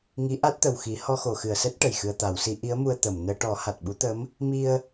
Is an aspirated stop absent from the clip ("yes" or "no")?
yes